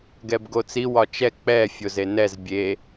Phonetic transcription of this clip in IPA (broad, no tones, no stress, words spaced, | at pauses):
ɡɛbɡot͡si wɒt͡ʃɛ k͡pɛ fʲozenɛz bʲe